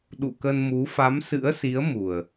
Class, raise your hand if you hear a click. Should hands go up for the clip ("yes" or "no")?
no